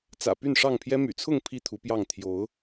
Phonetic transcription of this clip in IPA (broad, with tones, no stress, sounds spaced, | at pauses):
t͡s ä̰˨˩ p y˥˨ n ʂ ɑ˥˨ ŋ pʰ j ɛ˦ m y̰˨˩ t͡sʰ ʊ˥˨ ŋ pʰ i˥˨ t̪ʰ u˨˦ p j ɑ˥˨ ŋ t̪ʰ j o˨˦ ʊ̯